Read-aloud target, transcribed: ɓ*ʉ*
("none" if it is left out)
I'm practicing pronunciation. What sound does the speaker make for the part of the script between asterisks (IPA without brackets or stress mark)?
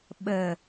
ə